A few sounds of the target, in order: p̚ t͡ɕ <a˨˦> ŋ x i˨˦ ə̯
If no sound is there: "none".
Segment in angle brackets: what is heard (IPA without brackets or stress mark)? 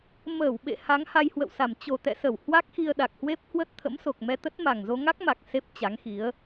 a˨˦